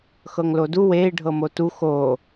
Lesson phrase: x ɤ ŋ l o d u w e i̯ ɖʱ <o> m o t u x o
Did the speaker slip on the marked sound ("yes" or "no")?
yes